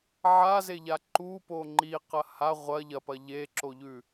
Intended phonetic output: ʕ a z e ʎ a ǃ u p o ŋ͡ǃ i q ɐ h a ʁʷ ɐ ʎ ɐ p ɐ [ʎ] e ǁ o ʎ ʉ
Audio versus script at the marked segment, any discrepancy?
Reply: no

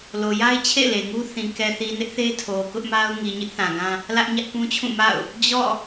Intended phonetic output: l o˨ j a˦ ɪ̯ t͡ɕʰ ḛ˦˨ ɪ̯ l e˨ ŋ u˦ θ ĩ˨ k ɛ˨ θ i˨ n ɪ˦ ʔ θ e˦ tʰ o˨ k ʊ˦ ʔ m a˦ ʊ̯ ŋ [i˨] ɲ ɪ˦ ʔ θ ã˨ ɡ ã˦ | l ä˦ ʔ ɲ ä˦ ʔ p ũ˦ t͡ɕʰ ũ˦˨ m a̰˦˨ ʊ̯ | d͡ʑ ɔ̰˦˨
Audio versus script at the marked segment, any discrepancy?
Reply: no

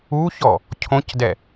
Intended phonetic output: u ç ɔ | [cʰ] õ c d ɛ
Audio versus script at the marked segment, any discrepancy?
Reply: no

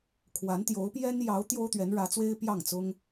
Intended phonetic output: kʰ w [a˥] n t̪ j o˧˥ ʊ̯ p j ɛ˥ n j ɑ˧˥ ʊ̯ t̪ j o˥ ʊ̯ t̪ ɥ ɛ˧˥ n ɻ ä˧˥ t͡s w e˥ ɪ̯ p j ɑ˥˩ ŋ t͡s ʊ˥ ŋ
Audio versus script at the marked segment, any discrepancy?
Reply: yes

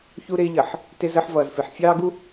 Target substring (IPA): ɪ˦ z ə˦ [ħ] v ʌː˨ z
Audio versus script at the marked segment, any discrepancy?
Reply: no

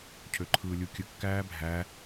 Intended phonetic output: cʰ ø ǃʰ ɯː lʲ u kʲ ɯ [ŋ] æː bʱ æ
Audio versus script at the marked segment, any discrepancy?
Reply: yes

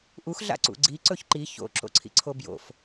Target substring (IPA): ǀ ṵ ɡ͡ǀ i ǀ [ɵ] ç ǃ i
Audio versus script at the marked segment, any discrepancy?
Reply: no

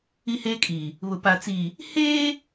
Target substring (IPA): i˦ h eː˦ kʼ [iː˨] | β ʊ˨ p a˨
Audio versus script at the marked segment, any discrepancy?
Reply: no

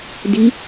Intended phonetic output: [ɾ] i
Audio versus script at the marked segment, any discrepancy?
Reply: yes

